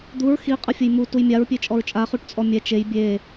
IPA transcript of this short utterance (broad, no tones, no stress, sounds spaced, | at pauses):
d̪ u ɹ x i qʼ ə fʲ ə j m u t u j mʲ a ɹ pʲ e t͡ʃʼ ɔ ɹ t͡ʃʼ a χ u ʈ t͡sʼ ɔ mʲ ɛ t͡ʃ e j bʲ e